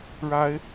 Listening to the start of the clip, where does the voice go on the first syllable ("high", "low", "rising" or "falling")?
rising